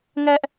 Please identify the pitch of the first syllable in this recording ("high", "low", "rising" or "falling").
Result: high